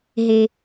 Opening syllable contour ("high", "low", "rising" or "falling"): low